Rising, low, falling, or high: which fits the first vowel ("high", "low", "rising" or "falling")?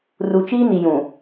low